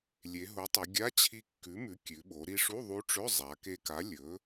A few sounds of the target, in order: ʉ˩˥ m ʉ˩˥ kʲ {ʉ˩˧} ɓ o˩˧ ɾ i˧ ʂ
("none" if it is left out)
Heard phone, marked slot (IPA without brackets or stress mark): ʉ˩˧